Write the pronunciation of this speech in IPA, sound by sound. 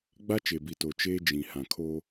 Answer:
ɡ͡b a˦ t͡ʃ e˨ b i˨ t oː˨ t͡ʃ eː˦ d͡ʒ ĩ˨ h ã˨ kʰ oː˦

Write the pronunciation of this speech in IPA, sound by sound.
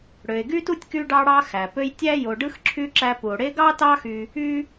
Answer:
ɽ ø˨ e̯ ɡ y˥ t u˥ tʲ k y˥ ɖ ɑ˥ ɽ ɑ˥ x æ˩ p ø˦ j tʲ æ˥ j o˨ ɖ ɯ˥ x ǁʰ y˦ ǁ æ˦ p u˩ o̯ ɽ e˦ ɡ ɑ˥ t ɑ˦ x y˨ | y˥

